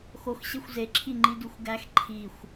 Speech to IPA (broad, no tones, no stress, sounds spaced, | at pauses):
x o x ɕ e xʷ z e ǁʰ i ŋ͡ǃ i d u xʷ ɡ æ x ǃʰ i xʷ